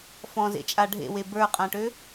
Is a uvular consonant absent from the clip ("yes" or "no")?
no